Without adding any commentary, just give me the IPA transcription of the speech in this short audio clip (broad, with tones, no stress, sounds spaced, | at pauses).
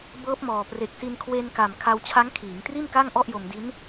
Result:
b ɤː˦˥ p̚ m ɔː˨˩ p r e˨˩ k̚ s i˧ n kʰ w e˧ n k a˨˩ m kʰ a˧ w t͡ɕʰ a˦˥ ŋ kʰ iː˩˦ ŋ t r i˥˩ n k a˥˩ ŋ ʔ ɔ˥˩ ʔ j o˧ m d i˦˥ n